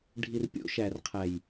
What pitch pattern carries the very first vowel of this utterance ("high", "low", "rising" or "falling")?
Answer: low